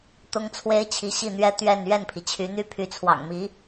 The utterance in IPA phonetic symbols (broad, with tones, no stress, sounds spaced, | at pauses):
t̪ ʊ˥ ŋ t͡sʰ w e˥ ɪ̯ t͡ɕʰ i˧˥ ɕ i˥˩ n̪ ɥ ɛ˥ t̪ ɥ ɛ˥˧ n ɥ ɛ˥˩ n pʰ i˩ t͡ɕʰ y˧˥ n̪ y˥˩ pʰ y˧˥ t͡sʰ w ɑ̰˨˩ ŋ m i˧˥